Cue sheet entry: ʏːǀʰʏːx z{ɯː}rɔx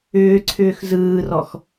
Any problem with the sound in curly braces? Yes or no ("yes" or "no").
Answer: no